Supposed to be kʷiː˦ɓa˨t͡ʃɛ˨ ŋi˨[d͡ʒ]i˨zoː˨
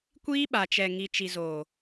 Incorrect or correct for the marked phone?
incorrect: t͡ʃ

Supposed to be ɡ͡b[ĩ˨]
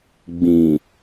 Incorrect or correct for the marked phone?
correct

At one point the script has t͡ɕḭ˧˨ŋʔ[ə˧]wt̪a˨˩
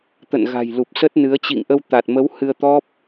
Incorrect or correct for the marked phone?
correct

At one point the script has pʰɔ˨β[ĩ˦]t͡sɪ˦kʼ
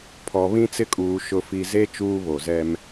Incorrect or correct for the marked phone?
correct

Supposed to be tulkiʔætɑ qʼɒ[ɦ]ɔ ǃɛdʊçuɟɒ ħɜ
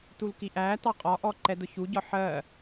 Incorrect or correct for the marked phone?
incorrect: ʔ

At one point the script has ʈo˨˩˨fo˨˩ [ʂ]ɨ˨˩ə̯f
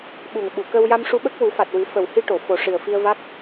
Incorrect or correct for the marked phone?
correct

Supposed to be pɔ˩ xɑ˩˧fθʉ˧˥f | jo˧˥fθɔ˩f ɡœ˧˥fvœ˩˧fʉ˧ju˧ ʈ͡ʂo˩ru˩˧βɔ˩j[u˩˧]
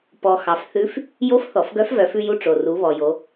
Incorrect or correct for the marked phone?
incorrect: o˩˧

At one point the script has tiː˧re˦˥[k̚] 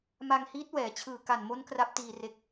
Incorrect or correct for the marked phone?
correct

